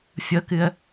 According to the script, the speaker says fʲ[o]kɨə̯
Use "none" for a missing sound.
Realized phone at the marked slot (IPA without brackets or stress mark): ɤ